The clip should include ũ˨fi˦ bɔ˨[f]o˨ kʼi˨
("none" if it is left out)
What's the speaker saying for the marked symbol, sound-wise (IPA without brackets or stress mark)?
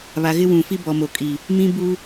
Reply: m